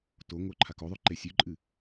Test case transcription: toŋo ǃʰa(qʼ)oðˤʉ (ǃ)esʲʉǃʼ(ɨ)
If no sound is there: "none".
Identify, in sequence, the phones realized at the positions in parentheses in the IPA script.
k, ǃ, ɨ

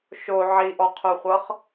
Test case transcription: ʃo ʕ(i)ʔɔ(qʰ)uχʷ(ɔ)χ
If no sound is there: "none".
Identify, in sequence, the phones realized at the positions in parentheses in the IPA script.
i, qʰ, ɤ

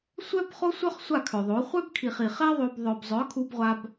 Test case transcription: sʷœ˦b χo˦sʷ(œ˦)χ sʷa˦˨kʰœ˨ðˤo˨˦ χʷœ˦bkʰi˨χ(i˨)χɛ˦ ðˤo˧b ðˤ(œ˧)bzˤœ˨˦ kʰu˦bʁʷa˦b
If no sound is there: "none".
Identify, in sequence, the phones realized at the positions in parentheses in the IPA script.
œ˦, i˨, œ˨

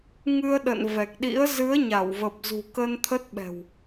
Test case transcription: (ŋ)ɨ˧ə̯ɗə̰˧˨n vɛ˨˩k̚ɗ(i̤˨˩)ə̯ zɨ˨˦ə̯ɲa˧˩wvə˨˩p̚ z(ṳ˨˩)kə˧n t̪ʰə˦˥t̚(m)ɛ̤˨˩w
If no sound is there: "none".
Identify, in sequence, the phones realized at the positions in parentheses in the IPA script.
ŋ, ḭ˧˥, ṳ˨˩, ɓ

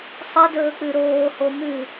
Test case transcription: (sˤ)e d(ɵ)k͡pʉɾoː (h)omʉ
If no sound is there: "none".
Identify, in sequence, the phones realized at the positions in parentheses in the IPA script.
sˤ, ɵː, h

